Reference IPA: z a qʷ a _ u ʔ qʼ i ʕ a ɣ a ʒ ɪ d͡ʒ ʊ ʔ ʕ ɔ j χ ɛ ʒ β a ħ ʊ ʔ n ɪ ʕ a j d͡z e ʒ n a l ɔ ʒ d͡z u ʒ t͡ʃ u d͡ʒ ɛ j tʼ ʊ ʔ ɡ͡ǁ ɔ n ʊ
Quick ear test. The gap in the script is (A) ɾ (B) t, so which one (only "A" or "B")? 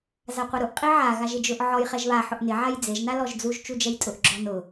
A